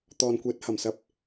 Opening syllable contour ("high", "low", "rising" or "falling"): low